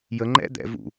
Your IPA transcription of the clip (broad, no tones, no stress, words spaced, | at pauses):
jəŋ͡ǃɛ̰ d̪ɛ̰ vṵ